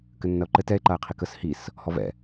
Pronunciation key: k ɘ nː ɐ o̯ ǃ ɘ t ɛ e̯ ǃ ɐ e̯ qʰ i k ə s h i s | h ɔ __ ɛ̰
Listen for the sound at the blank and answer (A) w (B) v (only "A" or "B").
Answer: B